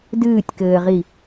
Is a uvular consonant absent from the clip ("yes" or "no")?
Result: no